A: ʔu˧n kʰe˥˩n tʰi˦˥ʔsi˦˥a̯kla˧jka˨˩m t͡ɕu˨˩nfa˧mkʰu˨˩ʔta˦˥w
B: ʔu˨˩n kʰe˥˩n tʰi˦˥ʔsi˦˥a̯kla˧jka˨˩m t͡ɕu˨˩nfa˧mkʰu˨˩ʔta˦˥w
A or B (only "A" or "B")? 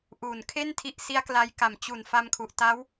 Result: B